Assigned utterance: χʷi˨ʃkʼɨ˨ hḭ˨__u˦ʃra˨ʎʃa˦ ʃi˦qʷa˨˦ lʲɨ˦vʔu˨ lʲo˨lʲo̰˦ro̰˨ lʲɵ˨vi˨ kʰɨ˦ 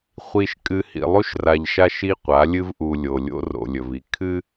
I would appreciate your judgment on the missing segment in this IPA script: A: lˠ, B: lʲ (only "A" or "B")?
A